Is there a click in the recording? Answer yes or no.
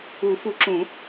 yes